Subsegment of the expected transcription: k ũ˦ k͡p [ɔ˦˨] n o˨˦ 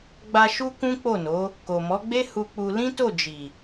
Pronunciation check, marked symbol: incorrect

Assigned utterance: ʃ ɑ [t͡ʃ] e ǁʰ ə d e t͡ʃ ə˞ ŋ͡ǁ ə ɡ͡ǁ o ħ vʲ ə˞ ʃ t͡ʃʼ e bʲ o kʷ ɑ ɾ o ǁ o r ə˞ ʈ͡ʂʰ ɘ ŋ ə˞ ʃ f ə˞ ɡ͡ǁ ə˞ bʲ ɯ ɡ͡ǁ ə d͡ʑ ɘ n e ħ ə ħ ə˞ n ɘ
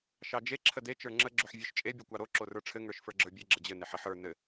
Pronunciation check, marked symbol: incorrect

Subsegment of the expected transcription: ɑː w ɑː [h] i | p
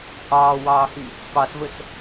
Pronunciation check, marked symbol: correct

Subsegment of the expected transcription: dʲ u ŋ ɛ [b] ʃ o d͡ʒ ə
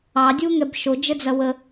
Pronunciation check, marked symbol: correct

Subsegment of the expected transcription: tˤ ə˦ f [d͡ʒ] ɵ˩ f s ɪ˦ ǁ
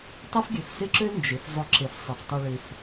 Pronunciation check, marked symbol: incorrect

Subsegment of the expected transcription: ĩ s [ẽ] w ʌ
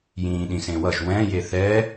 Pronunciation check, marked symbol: correct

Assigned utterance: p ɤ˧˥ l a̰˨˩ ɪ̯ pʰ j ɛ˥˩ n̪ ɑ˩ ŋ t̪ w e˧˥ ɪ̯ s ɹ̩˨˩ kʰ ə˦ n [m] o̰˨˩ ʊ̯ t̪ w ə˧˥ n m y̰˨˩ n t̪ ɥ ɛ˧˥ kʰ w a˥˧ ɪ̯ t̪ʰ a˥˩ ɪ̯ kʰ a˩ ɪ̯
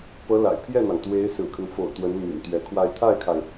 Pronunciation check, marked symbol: incorrect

